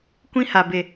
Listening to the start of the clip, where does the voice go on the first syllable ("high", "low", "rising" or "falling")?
high